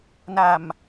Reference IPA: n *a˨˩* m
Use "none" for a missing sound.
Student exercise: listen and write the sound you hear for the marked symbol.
a˨˩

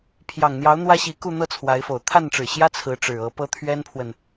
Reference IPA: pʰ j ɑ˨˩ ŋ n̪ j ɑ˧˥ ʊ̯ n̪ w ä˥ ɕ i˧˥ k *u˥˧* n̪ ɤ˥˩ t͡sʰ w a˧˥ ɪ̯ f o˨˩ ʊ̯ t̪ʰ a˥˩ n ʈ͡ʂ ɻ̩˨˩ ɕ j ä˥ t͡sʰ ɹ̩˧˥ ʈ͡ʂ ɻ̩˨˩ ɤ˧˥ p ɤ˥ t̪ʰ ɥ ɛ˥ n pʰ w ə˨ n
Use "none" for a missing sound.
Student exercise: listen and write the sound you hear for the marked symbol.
u˥˧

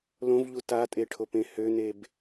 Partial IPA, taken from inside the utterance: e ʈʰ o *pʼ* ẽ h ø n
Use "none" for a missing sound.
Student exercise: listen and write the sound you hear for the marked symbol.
p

